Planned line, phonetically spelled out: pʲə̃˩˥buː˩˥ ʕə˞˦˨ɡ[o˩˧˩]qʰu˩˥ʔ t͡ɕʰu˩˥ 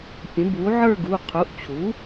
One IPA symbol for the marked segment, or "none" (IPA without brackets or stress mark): u˩˧˩